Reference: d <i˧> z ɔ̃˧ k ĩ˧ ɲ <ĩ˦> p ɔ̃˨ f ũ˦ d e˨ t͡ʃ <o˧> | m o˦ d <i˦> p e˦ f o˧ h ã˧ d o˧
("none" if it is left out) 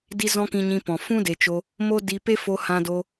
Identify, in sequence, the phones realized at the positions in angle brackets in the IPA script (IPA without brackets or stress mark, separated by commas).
i˧, ĩ˧, o˧, i˧